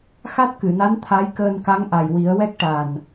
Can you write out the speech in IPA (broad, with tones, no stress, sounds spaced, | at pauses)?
x a˦˥ t̚ k ɨ˨˩˨ n a˧˥ n t̪ʰ a˧˥ j k əː˧ n k a˧˥ ŋ ʔ a˨˩ j w i˨˩˦ ə̯ w ɛ˦˥ k̚ ʈ a˨˩ n